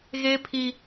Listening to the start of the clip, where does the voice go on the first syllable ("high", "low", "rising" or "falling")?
high